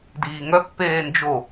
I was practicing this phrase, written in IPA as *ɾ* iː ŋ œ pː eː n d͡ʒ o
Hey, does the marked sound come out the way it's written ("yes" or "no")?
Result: no